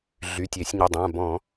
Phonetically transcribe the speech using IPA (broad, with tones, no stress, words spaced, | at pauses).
ɮy˩˧˩tʲe˧˩˧sʲɲə˩˧˩dˤã˩˧˩ bɔ̃˧˩˧